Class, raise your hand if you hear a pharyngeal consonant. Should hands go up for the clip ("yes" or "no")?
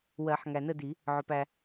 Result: yes